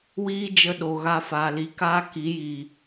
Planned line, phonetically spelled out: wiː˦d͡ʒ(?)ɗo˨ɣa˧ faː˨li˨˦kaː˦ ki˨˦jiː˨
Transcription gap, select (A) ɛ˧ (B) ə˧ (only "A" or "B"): B